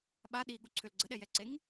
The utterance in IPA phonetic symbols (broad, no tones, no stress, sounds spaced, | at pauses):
ɓ a ɗ i ɠ u ǀʰ ʏ l ɡ͡ǀ ə ɗ ɛ j ɛ ǀ e ŋ